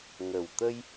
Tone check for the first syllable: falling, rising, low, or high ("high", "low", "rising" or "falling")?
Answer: low